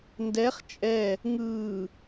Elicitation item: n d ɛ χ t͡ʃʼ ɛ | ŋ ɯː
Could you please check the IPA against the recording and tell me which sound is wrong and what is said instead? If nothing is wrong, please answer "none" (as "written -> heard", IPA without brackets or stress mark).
none